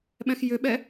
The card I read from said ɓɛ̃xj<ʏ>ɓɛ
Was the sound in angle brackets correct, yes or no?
yes